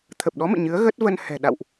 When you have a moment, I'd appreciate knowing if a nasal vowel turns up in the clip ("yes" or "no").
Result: no